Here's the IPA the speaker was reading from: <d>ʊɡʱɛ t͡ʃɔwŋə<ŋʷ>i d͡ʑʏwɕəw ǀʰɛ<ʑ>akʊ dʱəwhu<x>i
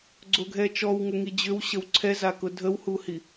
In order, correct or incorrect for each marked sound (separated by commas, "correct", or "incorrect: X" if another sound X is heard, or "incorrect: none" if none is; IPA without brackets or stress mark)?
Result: incorrect: ɡ͡ǀ, incorrect: ŋ, incorrect: z, incorrect: h